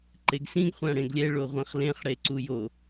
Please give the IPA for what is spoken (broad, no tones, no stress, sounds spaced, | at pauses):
ǃ e ɡ s ĩ ɡ χʷ ã ɽ ẽ ɡ lʲ ɛ ɭ o ʁʷ ẽ χ l ẽ χ ɽ e ǀ u j o